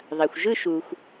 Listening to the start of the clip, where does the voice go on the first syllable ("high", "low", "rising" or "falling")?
low